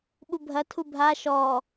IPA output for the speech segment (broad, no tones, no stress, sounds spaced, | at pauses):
ɓ u bʱ ɐ tʰ u bʱ a ʃ ɔ